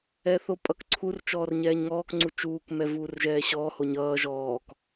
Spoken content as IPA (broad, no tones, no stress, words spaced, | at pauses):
ɛθopʼʌkǀʰur t͡ʃɔːrɲɛːɲŋɔːk ŋ͡ǀut͡ʃuːk mɛvuːrʒɛːɕɔː hoɲʌː ʒɔːk